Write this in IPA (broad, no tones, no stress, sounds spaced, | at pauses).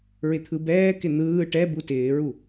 ɹ ɪ t̪ʰ ɯ b ɛː k ɪ n̪ ɯː ʈ ɛ b u t ɪː ɹ u